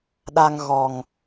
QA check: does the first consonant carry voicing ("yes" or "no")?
yes